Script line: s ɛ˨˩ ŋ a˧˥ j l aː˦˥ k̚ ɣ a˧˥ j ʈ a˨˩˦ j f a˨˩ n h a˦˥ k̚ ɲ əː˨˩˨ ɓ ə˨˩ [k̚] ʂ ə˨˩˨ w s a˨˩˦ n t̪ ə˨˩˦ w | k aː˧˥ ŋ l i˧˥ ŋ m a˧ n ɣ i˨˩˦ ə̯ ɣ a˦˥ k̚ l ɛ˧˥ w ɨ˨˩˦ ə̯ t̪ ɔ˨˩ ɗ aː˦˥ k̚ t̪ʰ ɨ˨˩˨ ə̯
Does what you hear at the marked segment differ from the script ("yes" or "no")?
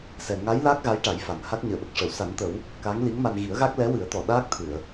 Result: no